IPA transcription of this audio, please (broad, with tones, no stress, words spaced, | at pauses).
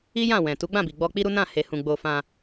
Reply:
i˦jã˦˨ wɛ̃˨ tu˨˦ɡ͡bã˦˨bi˨ɡ͡bɔ˧ k͡pi˦ɾu˦ nã˦˨he˨hũ˨ ɡ͡bo˧fã˧